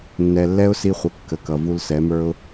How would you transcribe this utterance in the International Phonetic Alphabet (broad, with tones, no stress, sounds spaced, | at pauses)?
nː ɛ˨ lː ɛ˦ ʊ̯ s i˧ χʷ ə˨ kː ə˨ k ʌ˨ v u˧ l s ɛ˨˦ m ə˞˦ ʊ̯